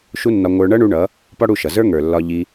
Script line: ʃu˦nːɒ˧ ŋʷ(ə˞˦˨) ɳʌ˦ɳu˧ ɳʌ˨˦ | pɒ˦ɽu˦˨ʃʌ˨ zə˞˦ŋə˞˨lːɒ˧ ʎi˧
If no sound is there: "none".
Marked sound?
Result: ə˞˧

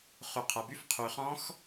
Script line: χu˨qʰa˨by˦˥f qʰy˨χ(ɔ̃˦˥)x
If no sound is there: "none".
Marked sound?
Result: ɔ̃˦˥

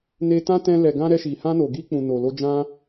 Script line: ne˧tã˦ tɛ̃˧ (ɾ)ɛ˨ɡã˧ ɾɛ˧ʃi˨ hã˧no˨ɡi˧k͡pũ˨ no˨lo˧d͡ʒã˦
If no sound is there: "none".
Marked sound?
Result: l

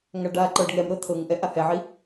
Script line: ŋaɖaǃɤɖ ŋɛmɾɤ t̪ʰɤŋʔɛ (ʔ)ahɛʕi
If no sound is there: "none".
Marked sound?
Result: ʔ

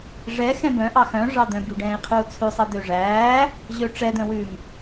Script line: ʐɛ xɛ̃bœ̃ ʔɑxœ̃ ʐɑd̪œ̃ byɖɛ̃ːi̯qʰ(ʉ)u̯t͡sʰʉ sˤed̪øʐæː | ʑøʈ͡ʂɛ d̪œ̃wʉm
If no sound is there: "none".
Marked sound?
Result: ʉ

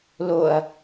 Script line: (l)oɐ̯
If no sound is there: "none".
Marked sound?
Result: l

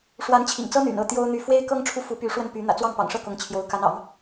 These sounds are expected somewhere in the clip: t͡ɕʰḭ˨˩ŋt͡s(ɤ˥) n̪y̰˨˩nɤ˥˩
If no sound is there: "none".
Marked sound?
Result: ɤ˥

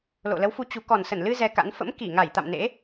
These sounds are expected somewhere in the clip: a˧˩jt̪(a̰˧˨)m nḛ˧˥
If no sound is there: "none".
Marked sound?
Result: a̰˧˨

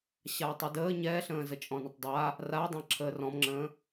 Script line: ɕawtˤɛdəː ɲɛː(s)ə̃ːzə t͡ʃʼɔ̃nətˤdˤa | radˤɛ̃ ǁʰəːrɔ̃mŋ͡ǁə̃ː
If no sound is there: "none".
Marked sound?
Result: ɬ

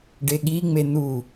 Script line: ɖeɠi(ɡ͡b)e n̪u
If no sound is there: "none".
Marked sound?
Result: ŋ͡m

